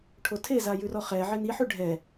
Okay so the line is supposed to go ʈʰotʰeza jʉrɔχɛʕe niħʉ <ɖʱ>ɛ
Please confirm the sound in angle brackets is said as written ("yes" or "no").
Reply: yes